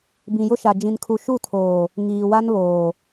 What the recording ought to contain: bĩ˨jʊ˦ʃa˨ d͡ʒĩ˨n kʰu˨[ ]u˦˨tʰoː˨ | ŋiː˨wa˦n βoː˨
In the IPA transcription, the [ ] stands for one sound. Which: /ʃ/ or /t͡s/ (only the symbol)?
ʃ